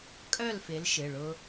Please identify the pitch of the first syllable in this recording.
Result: falling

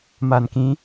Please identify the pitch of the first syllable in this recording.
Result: low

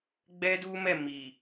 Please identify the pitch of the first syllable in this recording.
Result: high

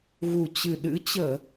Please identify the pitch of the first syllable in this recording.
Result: low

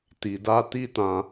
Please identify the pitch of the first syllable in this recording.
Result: low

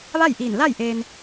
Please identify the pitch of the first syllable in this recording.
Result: falling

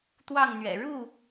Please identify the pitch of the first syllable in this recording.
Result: falling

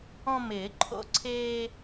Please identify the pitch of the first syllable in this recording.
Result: high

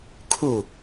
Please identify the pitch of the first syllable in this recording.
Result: falling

